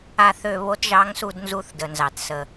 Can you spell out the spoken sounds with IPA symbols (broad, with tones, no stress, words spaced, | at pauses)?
a˦˨θø˦˨ βo˧˥tʒɑ˧˥ŋsu˦˨d nzu˦˨θdə˨˩nzɑ˨˩t sə˨˩